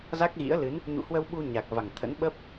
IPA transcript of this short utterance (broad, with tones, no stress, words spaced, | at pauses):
za˦˥k̚ ɣḭ˧˥ə̯lɨ˨˦n | ɲṵ˧˨hwə˧wɓu˧ ɲa˨˩k̚va˨˩ŋt̪ʰə̰˧˥n ɓə˦˥p̚